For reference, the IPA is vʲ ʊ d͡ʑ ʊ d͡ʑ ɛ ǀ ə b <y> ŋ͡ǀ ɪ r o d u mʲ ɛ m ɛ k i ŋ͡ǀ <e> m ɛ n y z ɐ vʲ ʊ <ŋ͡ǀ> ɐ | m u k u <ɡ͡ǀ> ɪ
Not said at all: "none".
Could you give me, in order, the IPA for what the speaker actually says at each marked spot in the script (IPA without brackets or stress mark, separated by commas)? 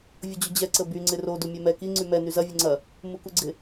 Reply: y, y, ŋ͡ǀ, ɡ͡ǀ